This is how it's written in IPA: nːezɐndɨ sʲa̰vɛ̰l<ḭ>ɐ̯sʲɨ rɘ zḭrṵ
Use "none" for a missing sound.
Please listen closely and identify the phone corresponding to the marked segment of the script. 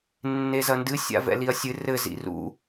i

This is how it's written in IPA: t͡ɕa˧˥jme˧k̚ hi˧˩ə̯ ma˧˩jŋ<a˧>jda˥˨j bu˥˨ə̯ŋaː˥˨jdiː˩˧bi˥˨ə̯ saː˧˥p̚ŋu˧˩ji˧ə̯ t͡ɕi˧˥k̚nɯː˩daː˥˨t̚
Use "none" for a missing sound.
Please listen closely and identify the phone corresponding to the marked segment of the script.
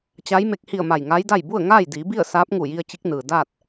a˧˥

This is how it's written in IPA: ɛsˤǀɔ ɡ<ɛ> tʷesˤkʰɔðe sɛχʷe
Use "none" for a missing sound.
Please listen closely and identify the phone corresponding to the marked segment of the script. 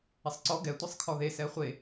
ɛ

